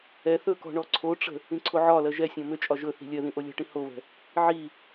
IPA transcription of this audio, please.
ɛ θ ɵ k ɔ̤ ɳ ɔ ǀʰ o ʈ͡ʂ ə̤ | ĩ ǀʰ o ʕ ɒ l ɜ ʒ ɛ sʲ ɔ̃ m ʏ t͡ʃʼ ɒ ʒ ɵ θ i̤ lʲ ɜ ð ĩ ʔ o lʲ ɔ̤ ʈ ĩ h o β ɛ̤ | ʕ i

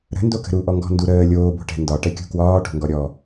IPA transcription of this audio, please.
ɾ ə̤ n d o k ə̤ ɾ u ʔ ɔ ŋ ɡ ɔ̤ n d u ɾ əː lʲ oː b o̤ ʈ ɛ̤ n d ɒ ʈ ɛ kʲ ṳ k w ɒː ʈ o̤ ŋ ɡ ɔ ɾʲ ɔ

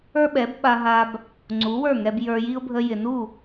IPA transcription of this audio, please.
ə˞˥ ɓ ɛ˩˥ b ɓ a˧ ɦ a˧ b | ŋ͡ǀ u˩˥ w ə˞˥˩ ŋ ɛ˧ b j ə˞˧ j i˥ ʊ̯ bʱ ə˧ j ɪ˩ n u˥˩

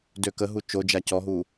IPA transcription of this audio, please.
d ø k ə ɦ u t͡ʃ o d͡ʒ a c ɔ ɦ u

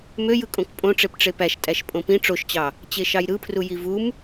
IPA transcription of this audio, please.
m ø j ɯ kʼ õ k pʼ õ ʈ͡ʂ e p ʈ͡ʂ e p æ ʃ tʼ æ ʃ pʼ õ p ĩ ʈ͡ʂ o ʃ t͡ɕ ɑ | t͡ɕ e ʃ ɑ j ɾ ɯ pʰ r u j i v u m

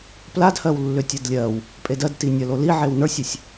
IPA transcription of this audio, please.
p l a d h ɜ w lː ʏ tʲ ə d lʲ ɜ w | pʼ e d ɜ d t i nʲ ɐ l o l i ʕ e w n ə˞ sʲ ʏ sʲ

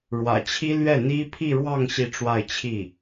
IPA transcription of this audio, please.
ɻ w ä̰˨˩ t͡ɕʰ i˥ l ɥ ɛ˥˩ n̪ i˥ pʰ i˥˧ ɻ w ɑ˥˧ ŋ ɕ i˥˧ ʈ͡ʂ w a˥˧ ɪ̯ t͡ɕʰ i˥˩

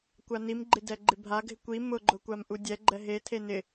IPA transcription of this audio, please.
kʷ a n i m ɡ͡ǃ ɪ d ɛ ɡ͡ǃ ɪ bʱ a ɡʱ ɪ kʷ i m ʊ ɡ͡ǃ ʊ kʷ a m ʔ u dʲ ɛ ɡ͡ǃ ɛ ɦ e tʰ e n ɪ

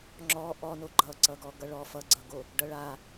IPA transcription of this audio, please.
ŋ͡ǁ ɔ ʔ ɔ n o ɡ͡ǃ ʌ ǀ ʌ ɡ ɔ ɡ ʌ ɭ ɔ f ʌ ɡ͡ǀ ʌ ɡ o | ɖ ʌ ɭ a

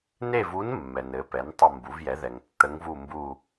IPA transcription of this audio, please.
n e˥˧ v u˧˥ n mː ɛ˨ n ɘ˩˥ p ɛ˩˥ n tˤ ə˥˧ m b u˩˥ v j ɛ˩˥ ð ɛ˨ ŋ tː ə˧˥ ŋ v u˥˧ m b u˥˧

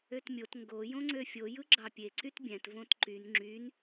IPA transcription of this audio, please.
ø t mʲ o t ŋ ɡ o j õ ŋ͡ǀ ø fʲ o j ɯ ɡ͡ǁ ɑ pʲ e ǀ y t bʲ æ̃ t v õ t ǃ y n ŋ͡ǁ y n

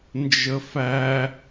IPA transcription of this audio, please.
n d͡ʒ ə f æ

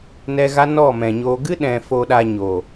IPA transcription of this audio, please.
n ɛ˧ ɣ a˦ n ɔ˦˨ m ɛ̃˨ ɲ oː˧ ɡ ɨ˦ ɗ ɛ̃˨ f o˧ ɗ a˧ ɲ oː˨

